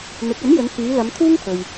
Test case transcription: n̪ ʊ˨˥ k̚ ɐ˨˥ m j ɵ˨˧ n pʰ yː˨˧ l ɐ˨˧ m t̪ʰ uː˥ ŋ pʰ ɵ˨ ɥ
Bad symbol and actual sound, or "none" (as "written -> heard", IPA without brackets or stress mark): none